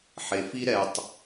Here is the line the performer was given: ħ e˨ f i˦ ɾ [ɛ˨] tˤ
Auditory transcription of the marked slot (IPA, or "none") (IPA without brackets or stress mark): ɛ˨